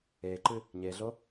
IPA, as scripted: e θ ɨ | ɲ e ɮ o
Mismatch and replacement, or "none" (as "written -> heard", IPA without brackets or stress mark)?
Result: θ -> ǃ